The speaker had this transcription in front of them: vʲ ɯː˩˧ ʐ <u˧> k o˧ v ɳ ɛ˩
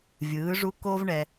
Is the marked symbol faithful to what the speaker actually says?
yes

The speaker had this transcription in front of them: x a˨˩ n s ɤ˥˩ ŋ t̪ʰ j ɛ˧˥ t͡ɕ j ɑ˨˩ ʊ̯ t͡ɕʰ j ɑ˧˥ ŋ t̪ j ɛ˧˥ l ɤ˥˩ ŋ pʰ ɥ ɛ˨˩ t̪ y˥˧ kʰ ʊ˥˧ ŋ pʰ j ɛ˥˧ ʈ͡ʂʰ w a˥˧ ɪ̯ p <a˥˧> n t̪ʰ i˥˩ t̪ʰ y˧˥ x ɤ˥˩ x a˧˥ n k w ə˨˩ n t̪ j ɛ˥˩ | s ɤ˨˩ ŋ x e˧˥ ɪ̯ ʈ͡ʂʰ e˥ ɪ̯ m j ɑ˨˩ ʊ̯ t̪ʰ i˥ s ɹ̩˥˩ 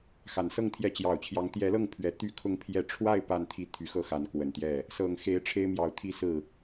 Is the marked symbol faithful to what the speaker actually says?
yes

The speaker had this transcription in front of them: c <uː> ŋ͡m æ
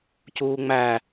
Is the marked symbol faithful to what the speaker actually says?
yes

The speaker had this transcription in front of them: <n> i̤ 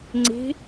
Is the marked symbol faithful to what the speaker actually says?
no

